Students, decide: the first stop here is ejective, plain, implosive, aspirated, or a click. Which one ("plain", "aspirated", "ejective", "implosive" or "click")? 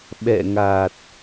implosive